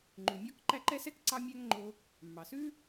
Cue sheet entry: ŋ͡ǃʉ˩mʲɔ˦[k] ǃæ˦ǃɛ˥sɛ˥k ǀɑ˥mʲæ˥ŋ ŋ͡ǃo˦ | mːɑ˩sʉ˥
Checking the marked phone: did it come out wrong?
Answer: no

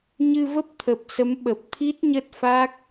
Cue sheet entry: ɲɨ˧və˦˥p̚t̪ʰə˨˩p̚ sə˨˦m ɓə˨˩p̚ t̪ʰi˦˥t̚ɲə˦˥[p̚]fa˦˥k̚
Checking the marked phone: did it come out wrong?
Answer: yes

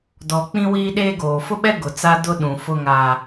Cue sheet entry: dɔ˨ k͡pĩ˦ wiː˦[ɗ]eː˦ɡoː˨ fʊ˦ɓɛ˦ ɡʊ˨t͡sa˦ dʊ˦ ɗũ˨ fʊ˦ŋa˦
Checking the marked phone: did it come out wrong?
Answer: no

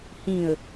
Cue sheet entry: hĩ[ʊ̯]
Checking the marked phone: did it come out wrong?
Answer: yes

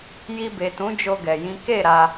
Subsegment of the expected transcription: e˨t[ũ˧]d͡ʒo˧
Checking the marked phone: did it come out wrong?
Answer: yes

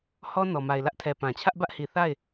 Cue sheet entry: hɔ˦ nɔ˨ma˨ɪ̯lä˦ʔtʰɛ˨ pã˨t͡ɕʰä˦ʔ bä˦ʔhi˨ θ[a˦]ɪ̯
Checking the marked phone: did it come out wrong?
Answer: yes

